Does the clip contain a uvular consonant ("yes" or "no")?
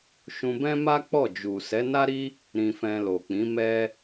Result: no